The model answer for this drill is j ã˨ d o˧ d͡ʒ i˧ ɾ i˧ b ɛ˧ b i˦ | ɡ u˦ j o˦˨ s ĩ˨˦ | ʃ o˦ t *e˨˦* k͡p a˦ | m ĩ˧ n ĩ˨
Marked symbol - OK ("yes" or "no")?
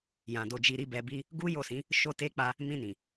no